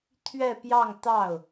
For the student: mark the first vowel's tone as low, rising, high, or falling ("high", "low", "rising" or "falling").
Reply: falling